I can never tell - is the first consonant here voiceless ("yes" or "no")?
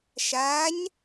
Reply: yes